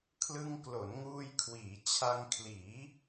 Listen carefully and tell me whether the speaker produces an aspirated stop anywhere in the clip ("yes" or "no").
yes